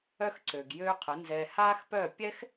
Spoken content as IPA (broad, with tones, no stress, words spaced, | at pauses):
œ˦xǀø˨ɡ jøː˦qʰə˨˦nzɛː˧ haː˦xpœ˦˨ pʲɛ˦x